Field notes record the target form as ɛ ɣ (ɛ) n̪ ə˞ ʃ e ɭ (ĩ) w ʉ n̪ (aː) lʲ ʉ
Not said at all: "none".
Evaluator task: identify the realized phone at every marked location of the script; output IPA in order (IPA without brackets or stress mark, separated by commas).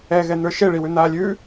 ɛ, i, aː